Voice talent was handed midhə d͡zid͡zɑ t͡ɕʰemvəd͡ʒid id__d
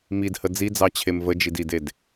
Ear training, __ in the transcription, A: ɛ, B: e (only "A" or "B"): B